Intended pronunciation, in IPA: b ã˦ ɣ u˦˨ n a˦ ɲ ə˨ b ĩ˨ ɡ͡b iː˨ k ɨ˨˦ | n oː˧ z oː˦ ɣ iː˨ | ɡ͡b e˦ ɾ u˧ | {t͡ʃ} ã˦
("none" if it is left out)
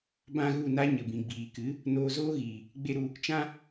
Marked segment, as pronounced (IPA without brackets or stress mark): t͡ʃ